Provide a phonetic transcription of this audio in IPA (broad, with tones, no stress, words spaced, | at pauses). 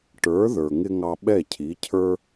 ʈə˞˩˥ ðə˞˩ŋɪ˧ ŋɑ˧ɓɛ˥˩cʰi˩˥cʰə˞˥